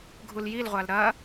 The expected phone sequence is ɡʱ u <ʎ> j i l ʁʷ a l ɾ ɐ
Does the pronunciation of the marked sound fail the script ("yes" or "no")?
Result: yes